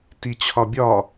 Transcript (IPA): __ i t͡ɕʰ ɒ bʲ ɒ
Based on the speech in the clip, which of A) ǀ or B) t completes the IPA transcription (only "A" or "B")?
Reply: B